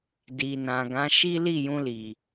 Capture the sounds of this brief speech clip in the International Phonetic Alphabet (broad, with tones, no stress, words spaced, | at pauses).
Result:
di˨nã˨ ɡã˨˦ʃi˦ li˦˨jũ˧li˨